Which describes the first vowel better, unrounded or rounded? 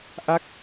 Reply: unrounded